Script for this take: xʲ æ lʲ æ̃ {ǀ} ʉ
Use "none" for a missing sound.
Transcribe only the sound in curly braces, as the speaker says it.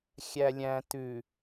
t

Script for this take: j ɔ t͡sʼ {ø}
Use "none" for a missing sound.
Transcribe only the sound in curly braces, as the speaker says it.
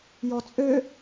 ø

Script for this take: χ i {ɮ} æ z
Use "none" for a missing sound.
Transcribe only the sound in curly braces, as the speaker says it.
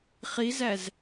z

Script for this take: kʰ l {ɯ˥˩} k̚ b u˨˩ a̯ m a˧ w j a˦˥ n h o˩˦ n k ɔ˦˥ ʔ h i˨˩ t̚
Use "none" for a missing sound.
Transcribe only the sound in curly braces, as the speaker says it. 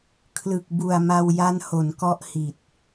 ɯ˨˩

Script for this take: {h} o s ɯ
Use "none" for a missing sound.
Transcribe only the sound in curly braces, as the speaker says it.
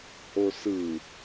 h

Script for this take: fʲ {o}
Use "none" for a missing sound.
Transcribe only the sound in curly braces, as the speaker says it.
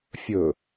ɵ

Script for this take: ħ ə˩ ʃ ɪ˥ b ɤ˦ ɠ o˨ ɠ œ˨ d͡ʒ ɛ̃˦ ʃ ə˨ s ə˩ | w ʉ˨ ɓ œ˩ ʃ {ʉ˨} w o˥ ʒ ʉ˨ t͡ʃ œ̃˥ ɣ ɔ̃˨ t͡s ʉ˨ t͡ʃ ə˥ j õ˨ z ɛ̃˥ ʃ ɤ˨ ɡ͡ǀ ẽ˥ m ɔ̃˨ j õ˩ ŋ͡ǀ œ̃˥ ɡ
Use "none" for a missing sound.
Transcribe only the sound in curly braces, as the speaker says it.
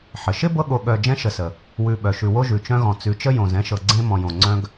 ʉ˨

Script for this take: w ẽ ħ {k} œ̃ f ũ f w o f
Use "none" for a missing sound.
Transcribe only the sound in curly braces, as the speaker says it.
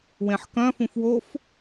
k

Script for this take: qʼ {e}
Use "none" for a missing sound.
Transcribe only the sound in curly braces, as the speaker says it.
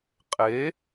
e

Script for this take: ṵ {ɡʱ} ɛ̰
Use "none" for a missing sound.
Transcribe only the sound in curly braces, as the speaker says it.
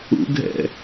ɡʱ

